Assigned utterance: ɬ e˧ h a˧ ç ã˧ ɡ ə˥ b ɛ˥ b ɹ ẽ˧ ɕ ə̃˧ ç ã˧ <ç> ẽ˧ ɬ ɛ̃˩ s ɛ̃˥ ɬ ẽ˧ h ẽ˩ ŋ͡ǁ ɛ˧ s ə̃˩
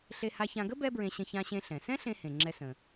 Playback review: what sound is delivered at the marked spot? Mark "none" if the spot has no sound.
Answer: ɕ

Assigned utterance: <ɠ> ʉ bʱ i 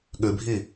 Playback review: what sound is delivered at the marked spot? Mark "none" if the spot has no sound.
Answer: ɠ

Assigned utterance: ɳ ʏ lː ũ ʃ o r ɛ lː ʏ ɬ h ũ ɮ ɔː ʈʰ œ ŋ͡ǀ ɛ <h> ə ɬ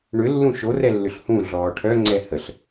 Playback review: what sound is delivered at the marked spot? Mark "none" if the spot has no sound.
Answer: h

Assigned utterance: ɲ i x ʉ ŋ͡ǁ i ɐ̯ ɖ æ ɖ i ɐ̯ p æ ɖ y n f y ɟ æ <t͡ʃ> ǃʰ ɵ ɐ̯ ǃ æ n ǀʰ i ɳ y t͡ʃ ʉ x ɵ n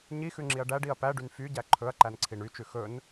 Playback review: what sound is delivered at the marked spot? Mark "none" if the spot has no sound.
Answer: none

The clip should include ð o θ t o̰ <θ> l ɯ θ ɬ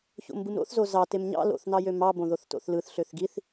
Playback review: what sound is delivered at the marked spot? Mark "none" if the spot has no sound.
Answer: θ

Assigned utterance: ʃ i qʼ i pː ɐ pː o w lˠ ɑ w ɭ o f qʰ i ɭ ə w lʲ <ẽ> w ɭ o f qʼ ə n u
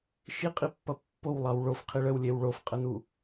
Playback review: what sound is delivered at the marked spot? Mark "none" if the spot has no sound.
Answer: e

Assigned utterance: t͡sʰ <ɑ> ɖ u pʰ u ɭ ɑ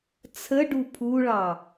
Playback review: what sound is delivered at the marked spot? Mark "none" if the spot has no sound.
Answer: ə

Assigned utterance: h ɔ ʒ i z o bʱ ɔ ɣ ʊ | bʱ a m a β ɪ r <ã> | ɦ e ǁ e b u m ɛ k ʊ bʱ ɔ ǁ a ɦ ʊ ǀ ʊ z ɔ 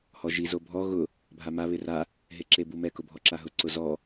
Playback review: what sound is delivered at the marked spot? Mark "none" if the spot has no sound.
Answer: a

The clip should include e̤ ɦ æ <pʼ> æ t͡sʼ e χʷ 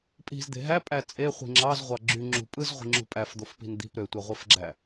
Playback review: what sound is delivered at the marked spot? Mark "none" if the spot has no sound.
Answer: pʼ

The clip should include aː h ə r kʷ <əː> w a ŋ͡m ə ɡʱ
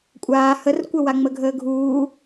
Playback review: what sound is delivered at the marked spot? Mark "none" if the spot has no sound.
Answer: ə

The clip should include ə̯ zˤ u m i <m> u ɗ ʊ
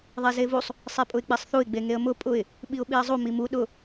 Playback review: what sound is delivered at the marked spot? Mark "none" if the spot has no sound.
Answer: m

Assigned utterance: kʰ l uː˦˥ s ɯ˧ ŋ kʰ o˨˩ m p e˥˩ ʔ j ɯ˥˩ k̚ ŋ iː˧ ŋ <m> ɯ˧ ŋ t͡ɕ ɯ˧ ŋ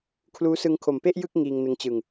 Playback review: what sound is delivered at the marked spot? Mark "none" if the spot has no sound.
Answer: n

